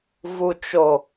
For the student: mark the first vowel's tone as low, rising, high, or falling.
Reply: low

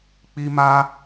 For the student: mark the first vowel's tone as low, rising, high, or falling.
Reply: high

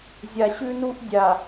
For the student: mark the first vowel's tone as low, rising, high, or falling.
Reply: low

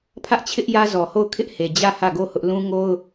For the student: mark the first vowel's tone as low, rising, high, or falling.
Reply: high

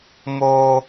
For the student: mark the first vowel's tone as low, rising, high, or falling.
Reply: high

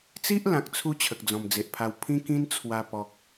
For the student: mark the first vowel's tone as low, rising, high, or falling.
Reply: high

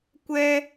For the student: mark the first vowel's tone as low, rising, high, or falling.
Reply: high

